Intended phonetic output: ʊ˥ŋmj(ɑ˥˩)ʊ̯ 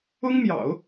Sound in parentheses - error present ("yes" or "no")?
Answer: yes